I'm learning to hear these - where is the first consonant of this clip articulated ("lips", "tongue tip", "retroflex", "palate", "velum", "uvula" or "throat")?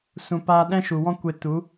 tongue tip